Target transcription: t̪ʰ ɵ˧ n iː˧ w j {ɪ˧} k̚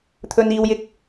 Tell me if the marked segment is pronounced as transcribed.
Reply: yes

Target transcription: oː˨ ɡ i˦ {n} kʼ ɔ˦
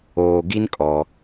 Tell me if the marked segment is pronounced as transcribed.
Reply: yes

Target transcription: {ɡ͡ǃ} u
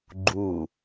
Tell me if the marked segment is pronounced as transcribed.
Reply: yes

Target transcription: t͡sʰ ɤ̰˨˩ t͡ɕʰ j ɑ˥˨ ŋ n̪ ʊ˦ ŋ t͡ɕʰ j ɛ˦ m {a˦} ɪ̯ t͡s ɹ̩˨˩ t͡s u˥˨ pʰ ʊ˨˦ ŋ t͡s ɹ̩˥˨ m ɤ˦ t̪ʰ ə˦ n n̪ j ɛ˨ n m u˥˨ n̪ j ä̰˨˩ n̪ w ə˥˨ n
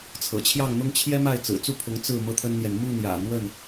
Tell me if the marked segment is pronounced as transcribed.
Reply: no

